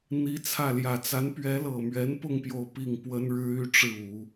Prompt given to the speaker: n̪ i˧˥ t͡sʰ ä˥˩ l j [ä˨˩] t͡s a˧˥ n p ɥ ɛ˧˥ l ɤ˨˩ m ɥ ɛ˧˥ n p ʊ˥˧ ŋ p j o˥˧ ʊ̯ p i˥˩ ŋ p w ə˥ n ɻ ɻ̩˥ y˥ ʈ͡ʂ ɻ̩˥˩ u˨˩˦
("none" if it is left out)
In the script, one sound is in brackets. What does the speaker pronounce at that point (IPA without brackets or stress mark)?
ä˨˩